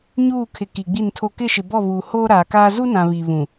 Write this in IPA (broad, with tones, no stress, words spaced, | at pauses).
ɲuː˦˨kʰɪ˨ ki˨ɡ͡bi˦˨ntʰo˦ kɪ˦˨ʃɪ˨bɔ˦˨βuː˨ hoː˦ ɾaː˨kaː˦ zu˦nã˨ βiː˨βũ˨